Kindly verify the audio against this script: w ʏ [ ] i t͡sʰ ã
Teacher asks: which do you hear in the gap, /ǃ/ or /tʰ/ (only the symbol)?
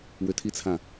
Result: tʰ